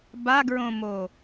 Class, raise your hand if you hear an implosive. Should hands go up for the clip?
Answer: no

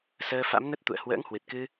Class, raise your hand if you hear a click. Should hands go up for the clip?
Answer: no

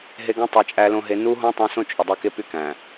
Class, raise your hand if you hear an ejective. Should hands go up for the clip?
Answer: yes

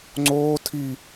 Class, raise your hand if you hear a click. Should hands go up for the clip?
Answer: yes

